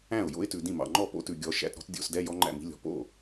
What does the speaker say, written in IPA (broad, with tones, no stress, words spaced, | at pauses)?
æ̃˥˩ʊ̯ jo̰˦˥ɪ̯tʉ˨dĩ˥˩mɑ̰˨ ŋ͡ǃɔ˥˩po̰˦˥tʉ˨ɡʲɔ˨˦ ʃæ̰˧˥˧tɾɔ̤˦˥tdʲo̰˧˥˧sdɛ˧˥˧ jɔ˦˥ŋ͡ǃæ̰˥˩mi̤˦˥lʲɔ̤˨ po̰˥˩